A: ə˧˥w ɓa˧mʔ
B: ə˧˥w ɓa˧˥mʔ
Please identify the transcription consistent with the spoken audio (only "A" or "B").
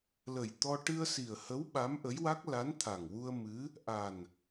B